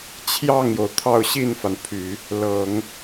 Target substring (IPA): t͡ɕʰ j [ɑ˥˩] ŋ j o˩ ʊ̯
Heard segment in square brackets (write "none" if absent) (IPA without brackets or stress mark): ɑ˥˩